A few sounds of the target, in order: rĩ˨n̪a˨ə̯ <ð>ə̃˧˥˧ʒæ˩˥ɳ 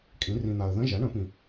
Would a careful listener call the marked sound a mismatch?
no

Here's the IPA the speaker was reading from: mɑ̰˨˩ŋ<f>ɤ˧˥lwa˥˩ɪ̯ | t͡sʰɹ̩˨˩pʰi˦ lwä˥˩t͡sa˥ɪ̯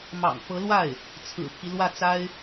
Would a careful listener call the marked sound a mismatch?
no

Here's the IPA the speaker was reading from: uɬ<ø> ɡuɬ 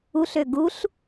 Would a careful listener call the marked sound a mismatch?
no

